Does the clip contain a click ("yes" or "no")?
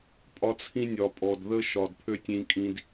no